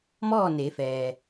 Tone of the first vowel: falling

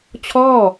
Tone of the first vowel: falling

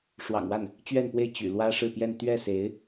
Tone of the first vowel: low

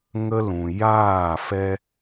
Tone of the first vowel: high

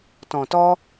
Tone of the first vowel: low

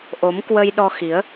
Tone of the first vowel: rising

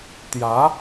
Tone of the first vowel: rising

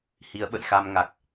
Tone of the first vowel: rising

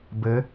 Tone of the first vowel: rising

